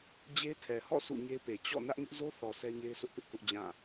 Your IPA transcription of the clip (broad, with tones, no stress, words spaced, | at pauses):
d͡ʑe˦tʰɛ˨hɔ̰˦˨ sṵ˦˨ɲe˦pe˨ t͡ɕɔ̰˦˨ nä˦ʔŋɪ˦ʔ zo˦θɔ˨ sɛ˦ɲe˦ɪ̯sʰʊ˦ʔpɪ˦ʔ kʊ˦ʔd͡ʑã˦˨